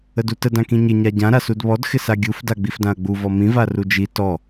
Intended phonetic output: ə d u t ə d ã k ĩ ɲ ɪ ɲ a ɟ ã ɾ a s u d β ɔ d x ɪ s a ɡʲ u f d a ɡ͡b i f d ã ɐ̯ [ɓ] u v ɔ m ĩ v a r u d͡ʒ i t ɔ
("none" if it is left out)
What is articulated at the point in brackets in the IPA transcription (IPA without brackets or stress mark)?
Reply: ɡ͡b